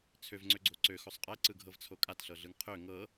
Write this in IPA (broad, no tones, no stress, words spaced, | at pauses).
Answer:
t͡sʰøvŋ͡ǀøɡ͡ǀo ǀøxosˤ qʼɛǀɯɡʱɤvt͡sʰo kʼatɬɤɮɯŋ qʰø ŋɤ